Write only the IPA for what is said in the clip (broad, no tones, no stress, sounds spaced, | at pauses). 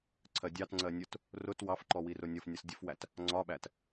ǀʰ ɜ dʲ ɑ t ŋ͡ǀ ɜ nʲ ʊ t | r ʊ t w ɑ f ǃ ɔ w i r ʊ nʲ ʌ f nʲ ʌ s dʲ ə f w æ t | ŋ͡ǀ ɒ ɓ æ t